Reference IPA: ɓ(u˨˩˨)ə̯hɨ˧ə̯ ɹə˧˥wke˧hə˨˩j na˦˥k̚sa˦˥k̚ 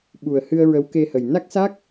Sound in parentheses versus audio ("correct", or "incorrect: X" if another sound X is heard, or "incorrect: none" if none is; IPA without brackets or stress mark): incorrect: u˨˩